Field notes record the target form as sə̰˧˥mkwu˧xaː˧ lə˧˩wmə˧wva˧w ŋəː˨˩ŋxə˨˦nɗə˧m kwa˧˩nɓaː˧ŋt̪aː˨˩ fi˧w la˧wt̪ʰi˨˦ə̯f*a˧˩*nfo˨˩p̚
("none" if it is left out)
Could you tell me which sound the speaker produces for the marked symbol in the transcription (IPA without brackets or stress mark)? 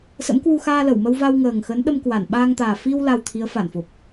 a˧˩